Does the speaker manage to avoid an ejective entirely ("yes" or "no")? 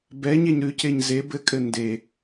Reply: no